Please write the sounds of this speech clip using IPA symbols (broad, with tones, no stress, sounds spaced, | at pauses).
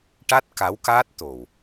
ʈ a˦˥ t̚ k a˧˥ w k aː˦˥ t̚ t̪ o˨˩ w